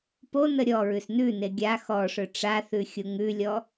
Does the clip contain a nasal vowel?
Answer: no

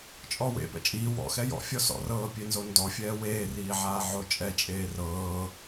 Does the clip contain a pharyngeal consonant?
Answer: yes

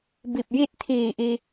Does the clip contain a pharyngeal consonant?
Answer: no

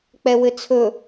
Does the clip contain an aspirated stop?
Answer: yes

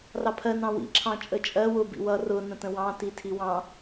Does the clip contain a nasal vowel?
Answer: yes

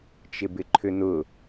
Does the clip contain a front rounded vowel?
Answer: yes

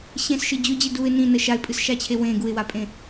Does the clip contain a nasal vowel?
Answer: yes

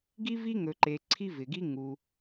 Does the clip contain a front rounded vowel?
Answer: no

